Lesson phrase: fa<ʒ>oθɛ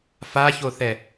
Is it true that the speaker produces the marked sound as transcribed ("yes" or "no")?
no